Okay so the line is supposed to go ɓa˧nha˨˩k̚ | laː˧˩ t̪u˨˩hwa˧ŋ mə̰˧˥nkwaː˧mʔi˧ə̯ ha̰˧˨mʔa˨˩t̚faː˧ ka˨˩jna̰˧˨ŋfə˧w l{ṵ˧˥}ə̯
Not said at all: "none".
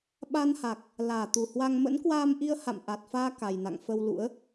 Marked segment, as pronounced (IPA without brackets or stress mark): ṵ˧˥